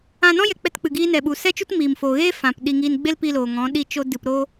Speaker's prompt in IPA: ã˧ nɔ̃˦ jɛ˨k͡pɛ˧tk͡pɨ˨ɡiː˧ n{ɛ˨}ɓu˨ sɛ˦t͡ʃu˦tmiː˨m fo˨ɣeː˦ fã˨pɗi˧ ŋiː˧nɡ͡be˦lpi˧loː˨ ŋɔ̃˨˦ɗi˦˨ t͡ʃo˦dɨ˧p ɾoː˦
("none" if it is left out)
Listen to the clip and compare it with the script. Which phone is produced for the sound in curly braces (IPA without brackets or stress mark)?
ɛ˨